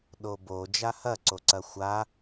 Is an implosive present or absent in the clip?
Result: present